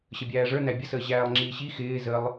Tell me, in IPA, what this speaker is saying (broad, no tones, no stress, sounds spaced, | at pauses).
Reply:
ɕ ə bʲ æː ʐ ə˞ n æ bʲ ə s əː ʑ æː lˠ ŋ͡ǁ iː ɕ i x ɪː z ə lˠ